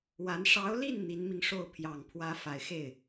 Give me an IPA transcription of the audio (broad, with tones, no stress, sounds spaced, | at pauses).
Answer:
w a˧˥ n ʂ ɑ˧˥ ʊ̯ l i˥˩ n n̪ i˧˥ n m i˧ ŋ ʂ o˥˩ ʊ̯ pʰ j ɑ˨˩ ŋ pʰ w ä˧˥ f a˨˩ ɪ̯ x e˥˩ ɪ̯